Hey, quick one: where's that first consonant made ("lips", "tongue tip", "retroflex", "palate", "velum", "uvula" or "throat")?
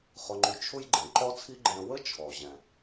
uvula